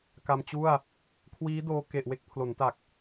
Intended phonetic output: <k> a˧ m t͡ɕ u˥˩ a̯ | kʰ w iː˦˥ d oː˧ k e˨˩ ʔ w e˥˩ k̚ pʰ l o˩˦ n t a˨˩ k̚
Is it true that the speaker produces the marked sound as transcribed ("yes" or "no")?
yes